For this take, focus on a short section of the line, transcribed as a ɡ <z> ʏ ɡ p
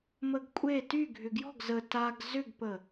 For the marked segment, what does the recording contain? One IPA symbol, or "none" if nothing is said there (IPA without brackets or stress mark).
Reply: z